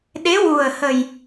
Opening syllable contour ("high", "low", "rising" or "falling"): rising